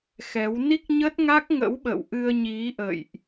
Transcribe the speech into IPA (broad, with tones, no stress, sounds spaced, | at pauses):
x ɛ˨˦ w n i˦˥ k̚ ɲ ə˦˥ t̚ ŋ a˦˥ k̚ ŋ ə̰˧˥ w ɓ ə̰˧˨ w ʔ ɨ˧ ə̯ ɲ i˨˦ ʔ ə̰˧˨ j ʔ